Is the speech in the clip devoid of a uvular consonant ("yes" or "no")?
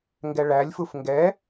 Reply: yes